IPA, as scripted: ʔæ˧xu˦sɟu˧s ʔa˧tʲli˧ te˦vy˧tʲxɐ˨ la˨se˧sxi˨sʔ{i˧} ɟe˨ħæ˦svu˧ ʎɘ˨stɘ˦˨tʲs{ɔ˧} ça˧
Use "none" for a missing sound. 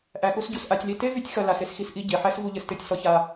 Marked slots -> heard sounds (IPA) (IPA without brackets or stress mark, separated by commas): i˧, ɔ˧